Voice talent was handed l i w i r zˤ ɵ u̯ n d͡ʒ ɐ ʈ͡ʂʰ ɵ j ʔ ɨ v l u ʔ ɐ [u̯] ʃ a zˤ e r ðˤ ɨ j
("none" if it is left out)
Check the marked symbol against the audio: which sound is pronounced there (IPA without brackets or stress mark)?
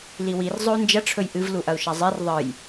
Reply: u̯